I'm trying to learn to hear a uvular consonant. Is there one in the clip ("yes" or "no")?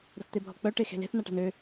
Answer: no